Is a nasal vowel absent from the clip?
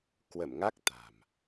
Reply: yes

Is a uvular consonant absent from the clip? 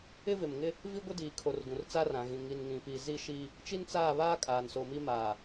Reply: yes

